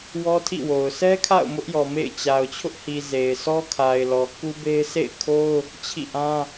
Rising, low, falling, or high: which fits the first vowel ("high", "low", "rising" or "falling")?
high